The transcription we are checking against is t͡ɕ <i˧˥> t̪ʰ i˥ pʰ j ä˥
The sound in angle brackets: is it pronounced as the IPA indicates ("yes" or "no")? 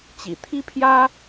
no